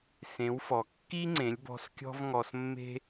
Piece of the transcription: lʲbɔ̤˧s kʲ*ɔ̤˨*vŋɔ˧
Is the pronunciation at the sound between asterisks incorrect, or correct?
incorrect